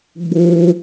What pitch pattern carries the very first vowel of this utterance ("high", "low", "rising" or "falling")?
high